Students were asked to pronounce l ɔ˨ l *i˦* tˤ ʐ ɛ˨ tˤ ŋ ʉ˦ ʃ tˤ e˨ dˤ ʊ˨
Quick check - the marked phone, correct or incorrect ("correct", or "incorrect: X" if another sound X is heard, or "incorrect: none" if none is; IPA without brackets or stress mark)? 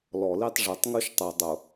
correct